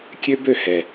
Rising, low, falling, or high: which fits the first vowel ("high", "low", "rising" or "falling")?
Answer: high